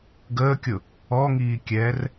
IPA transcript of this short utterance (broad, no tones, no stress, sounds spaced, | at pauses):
ɡ əː kʲ ʊ | ɔ ŋ iː kʲ ɛː r